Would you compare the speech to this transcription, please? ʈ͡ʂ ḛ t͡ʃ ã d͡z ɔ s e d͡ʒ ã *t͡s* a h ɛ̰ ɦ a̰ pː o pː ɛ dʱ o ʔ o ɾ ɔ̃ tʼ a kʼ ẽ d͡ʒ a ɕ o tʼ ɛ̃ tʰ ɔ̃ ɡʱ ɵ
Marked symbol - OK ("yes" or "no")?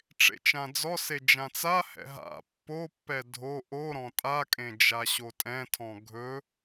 yes